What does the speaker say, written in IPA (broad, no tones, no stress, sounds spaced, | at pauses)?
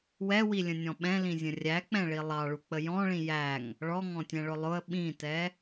w ɛ w i lʲ ə̃ nʲ ɔ̃ ɓ ɛ̃ l ĩ zʲ ə̃ rʲ æ k͡p ɛ̃ ɭ i lˠ ɑ ɭ u k͡p ə j ɔ̃ ɭ ĩ j æ ŋ | ɭ ɔ ŋ ɔ̃ tʲ ɛ̃ ɭ ʊ lˠ ʊ ə̯ ɓ ĩ t ɛ